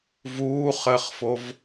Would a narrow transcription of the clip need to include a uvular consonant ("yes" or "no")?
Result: yes